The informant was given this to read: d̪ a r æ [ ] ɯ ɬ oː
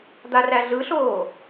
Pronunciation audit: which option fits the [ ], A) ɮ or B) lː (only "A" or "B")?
A